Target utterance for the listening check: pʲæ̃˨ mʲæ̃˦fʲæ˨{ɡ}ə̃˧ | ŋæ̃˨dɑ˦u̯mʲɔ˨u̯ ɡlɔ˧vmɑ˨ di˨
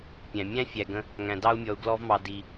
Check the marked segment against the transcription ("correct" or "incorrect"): correct